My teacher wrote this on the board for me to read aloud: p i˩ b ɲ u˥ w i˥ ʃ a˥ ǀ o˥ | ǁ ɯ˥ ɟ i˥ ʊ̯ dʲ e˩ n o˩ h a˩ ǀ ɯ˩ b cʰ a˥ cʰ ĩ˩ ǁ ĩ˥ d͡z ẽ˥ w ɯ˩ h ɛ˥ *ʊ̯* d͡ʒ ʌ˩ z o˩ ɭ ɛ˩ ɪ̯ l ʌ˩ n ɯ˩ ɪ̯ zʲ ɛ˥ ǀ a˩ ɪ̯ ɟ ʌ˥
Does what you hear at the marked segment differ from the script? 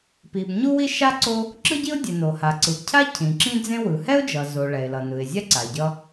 no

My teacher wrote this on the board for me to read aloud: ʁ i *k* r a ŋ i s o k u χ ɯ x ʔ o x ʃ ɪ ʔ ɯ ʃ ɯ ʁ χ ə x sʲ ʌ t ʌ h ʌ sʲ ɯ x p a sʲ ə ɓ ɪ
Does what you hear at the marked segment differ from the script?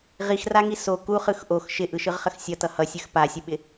yes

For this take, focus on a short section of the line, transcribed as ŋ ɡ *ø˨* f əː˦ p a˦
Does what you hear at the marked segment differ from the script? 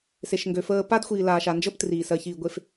no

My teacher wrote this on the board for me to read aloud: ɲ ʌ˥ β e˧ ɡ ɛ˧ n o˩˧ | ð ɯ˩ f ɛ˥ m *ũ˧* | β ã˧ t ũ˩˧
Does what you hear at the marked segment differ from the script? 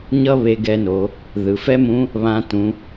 yes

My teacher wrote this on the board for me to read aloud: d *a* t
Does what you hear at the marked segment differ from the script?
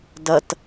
yes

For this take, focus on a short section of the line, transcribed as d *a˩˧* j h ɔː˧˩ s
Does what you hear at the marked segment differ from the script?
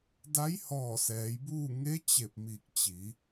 yes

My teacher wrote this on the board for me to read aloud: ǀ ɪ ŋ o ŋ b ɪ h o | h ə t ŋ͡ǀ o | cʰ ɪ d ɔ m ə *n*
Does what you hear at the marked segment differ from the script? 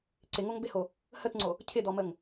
yes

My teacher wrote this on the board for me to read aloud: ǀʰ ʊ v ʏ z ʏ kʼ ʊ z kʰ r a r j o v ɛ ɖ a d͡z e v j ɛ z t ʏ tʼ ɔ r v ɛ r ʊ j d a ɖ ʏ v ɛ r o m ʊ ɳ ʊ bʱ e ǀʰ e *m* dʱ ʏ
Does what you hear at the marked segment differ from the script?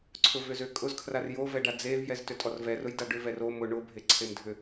no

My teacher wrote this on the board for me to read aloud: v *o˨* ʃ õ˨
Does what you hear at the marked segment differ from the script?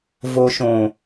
no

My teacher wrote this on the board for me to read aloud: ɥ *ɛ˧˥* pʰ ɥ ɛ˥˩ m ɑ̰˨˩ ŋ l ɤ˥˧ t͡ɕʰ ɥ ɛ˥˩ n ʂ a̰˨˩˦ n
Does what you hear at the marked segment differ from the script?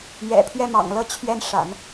yes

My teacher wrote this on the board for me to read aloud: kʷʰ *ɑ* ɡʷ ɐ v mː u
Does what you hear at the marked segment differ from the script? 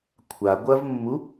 yes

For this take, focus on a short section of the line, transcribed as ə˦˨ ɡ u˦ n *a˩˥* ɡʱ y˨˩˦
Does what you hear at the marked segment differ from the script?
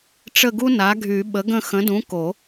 no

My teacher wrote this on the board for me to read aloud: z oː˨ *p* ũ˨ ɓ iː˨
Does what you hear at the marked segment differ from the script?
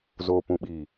no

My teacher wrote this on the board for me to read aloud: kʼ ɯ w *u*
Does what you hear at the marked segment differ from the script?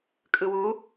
no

